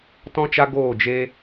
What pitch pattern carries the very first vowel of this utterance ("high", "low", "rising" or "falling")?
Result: high